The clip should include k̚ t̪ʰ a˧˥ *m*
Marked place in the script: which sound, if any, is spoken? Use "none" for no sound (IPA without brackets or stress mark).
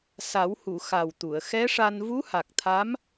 m